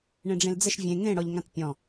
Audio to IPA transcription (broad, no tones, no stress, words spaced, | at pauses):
ɳẽɖ͡ʐẽld͡zəʃ vʲẽ ŋẽɽɔʎŋãt pʲɔ̃